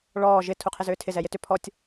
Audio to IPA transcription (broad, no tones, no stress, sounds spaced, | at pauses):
ɭ ɔː ʒ ɪ tʰ u qʰ ɪ z ʏː tʰ ɪ z ɛ j ɪ t ʏ pʰ ɔ tʲ